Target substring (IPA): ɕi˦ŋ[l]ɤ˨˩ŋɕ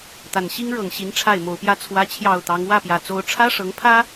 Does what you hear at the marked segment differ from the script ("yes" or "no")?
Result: yes